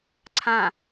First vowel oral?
no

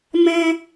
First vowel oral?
no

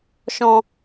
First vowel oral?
no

